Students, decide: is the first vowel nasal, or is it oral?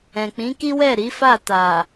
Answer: nasal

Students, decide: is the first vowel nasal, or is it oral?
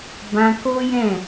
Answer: nasal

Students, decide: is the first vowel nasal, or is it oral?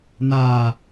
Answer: oral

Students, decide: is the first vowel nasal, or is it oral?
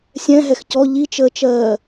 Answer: nasal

